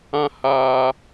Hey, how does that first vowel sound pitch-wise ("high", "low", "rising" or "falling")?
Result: high